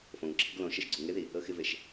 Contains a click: yes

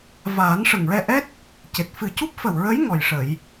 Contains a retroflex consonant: yes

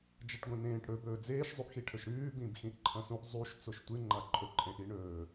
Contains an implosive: no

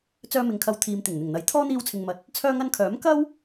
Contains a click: no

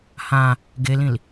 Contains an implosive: no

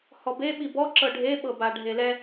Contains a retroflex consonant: yes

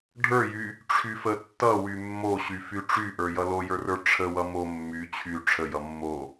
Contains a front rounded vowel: yes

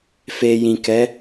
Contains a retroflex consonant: no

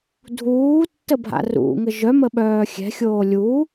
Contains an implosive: yes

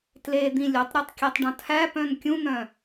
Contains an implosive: no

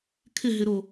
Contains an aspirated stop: yes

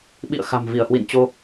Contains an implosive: yes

